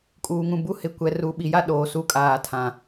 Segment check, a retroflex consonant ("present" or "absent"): absent